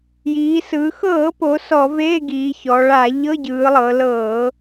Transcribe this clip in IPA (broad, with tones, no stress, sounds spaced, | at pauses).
j iː˩˧ s ɯ˩˧ x ɤː˧˩˧ p o˩˧ s ɔ˧˩˧ v eː˧˥˧ ɡ iː˩˧ ç ɔ˩˧ ɭ a˧˩˧ ʎ ɤ˧˥˧ ɟ ɯː˩˧ lˠ ɤ˩˧ l ɤː˧˩˧